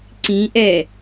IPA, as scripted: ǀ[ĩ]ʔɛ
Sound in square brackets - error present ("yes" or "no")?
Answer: no